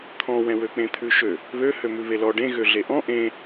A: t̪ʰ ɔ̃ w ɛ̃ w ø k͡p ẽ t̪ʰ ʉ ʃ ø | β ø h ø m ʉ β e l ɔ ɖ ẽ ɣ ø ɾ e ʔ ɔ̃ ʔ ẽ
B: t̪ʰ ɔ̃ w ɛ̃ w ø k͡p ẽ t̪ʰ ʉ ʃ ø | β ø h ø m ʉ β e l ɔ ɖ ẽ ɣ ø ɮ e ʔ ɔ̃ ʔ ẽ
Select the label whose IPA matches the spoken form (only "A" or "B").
B